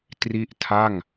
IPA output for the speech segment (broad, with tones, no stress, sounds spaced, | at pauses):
t r i˥˩ ʔ tʰ a˥˩ ŋ